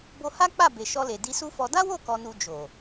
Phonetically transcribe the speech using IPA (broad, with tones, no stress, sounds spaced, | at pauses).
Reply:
b o˧ h a˦ k͡p a˦˨ b e˨ ʃ ɔ˧ l e˨ d i˧ s u˦ f ɔ˧ d a˦ w o˦˨ k ɔ˧ n u˧ d͡ʒ o˨